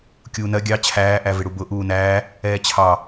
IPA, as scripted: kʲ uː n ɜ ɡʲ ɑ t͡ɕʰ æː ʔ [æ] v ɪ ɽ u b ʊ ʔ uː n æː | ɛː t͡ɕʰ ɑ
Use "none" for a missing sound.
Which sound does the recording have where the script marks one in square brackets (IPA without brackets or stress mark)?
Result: æ